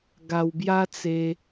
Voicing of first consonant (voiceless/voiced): voiced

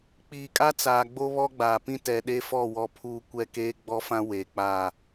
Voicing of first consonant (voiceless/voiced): voiceless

